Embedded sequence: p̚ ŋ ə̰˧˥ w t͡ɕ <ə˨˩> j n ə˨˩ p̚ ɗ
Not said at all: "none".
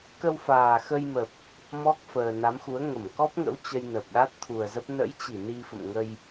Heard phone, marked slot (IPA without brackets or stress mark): ə˧